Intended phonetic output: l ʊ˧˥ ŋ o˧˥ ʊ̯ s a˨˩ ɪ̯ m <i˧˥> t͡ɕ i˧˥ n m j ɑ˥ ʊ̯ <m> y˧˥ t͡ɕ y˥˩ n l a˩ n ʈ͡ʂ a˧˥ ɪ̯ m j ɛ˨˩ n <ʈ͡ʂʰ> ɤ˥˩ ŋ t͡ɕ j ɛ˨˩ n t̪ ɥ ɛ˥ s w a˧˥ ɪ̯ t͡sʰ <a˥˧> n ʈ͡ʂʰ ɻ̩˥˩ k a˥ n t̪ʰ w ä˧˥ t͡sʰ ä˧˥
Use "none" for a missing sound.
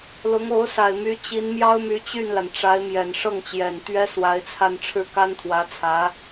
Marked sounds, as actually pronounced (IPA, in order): y˧˥, m, ʂ, a˥˧

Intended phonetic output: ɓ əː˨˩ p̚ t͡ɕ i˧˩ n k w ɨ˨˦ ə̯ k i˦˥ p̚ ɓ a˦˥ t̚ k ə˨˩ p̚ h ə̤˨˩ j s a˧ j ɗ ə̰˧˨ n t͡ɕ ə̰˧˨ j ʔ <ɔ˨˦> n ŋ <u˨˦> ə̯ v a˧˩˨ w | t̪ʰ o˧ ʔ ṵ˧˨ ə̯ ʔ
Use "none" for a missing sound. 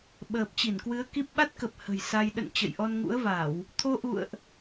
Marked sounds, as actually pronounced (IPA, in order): ɔ˧, ṵ˧˥

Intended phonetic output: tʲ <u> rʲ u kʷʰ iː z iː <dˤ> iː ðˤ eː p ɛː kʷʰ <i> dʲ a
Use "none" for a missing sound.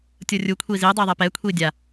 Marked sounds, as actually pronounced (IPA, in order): o, dˤ, iː

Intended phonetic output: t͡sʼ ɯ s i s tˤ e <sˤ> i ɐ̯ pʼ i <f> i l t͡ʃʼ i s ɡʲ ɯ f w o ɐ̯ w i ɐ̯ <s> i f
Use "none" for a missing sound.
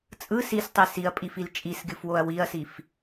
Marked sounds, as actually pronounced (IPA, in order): s, f, s

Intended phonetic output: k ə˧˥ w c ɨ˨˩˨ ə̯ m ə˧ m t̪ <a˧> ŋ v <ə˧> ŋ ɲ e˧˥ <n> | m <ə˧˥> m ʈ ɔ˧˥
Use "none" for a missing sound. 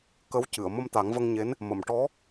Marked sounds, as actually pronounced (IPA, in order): a˨˩˦, ə˧, n, ə˨˩˨

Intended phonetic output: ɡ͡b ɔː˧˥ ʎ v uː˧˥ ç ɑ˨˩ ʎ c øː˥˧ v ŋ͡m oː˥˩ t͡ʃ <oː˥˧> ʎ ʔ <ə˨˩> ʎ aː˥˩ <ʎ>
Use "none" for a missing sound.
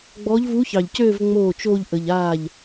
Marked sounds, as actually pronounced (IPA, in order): oː˥˧, ə˨˩, ʎ

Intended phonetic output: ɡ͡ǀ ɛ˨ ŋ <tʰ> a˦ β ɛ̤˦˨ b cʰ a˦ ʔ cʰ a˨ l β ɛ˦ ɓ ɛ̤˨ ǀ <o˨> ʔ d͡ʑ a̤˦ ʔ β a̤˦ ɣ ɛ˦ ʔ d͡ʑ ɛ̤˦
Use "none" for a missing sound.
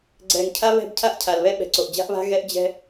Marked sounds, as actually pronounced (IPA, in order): cʰ, o˨

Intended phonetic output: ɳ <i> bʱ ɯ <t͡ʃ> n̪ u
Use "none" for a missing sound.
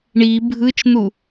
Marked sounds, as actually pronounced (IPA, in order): i, t͡ʃ

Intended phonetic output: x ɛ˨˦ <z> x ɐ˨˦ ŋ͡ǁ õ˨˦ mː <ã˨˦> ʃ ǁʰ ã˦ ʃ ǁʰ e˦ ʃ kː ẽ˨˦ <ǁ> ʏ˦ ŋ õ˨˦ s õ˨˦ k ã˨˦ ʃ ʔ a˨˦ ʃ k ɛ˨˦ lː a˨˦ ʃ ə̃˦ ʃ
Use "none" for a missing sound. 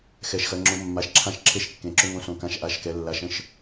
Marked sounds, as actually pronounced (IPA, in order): ʃ, a˨˦, ǁ

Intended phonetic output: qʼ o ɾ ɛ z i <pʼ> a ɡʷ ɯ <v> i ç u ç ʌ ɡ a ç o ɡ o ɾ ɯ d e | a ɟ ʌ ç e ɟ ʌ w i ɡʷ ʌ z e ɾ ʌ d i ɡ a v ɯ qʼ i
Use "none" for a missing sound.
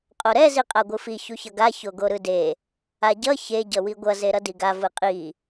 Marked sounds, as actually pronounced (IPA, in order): qʼ, f

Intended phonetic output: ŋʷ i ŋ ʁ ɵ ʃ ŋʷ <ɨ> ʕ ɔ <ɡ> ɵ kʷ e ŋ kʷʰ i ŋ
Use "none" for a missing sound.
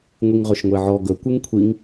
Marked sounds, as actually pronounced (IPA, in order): e, ɡ

